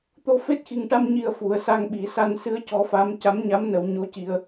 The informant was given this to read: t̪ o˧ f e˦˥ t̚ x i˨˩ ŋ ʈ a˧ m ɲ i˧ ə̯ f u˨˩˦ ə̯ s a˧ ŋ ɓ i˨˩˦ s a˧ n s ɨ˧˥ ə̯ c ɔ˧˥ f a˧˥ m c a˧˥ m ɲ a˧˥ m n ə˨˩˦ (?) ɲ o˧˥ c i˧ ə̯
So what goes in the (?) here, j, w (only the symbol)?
w